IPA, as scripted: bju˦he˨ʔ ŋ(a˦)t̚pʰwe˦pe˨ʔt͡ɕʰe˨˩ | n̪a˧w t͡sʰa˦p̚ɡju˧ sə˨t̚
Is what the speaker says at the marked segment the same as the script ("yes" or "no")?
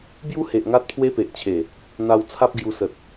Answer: yes